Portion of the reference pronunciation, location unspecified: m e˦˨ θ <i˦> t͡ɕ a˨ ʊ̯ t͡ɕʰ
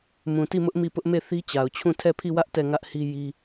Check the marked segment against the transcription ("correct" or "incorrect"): correct